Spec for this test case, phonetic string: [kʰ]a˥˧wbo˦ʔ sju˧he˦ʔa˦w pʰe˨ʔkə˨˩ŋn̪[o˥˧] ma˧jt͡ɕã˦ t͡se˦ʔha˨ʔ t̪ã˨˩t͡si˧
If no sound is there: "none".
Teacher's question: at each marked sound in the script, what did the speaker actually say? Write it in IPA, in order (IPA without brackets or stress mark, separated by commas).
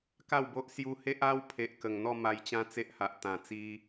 k, ɔ˥˧